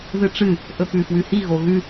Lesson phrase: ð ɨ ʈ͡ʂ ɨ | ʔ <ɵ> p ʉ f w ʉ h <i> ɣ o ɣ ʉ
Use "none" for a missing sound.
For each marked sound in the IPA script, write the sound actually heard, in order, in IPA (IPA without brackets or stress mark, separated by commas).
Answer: ɵ, i